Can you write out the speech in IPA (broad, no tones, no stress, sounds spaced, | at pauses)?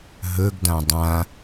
ɦ ɵ ɡ d ã dˤ ã